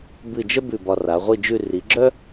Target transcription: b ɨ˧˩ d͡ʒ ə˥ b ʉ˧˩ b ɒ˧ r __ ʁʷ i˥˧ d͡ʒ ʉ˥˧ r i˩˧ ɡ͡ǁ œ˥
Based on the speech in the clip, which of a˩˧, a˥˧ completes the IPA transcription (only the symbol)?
a˩˧